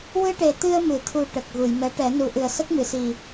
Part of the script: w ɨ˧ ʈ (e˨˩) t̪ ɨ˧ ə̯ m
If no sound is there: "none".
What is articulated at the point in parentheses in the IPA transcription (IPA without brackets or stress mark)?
e˨˩